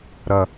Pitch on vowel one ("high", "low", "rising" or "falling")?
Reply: low